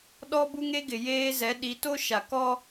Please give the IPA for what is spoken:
ɗɔ˦bu˦ŋe˦ ɡɪ˨ jeː˦zɛ˨˦ ɗi˨˦to˦ʃa˨ kɔ˦

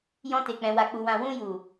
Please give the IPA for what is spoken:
jɔ̃˧te˨k͡pɛ̃˨ wa˨k͡pu˨wã˨ wũ˧ ju˨

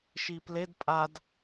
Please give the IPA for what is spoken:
ʃipled pʼad

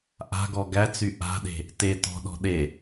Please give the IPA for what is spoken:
ʔa̤ɡɔ ɡæt͡sy ʔa̤ɗe̤ | te tɔ̤ɗɔ̤ ɗe

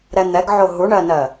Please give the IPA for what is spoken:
ɾɛn̪ɛɡʕo ɦuɳɜnɜ

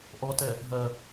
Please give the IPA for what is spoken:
ʔɔtɛ | ɦɜ

